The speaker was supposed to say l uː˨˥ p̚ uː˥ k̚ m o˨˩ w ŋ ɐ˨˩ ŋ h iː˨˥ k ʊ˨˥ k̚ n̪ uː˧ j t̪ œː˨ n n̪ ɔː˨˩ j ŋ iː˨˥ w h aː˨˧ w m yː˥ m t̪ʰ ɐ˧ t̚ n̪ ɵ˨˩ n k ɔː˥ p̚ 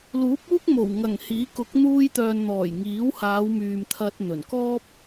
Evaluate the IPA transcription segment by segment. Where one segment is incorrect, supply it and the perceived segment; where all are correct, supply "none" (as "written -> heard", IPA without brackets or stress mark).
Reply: yː˥ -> yː˨